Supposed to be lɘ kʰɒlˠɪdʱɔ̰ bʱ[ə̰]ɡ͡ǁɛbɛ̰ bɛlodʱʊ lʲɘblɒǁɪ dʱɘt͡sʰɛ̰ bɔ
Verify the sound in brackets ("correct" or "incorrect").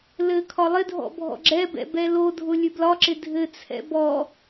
incorrect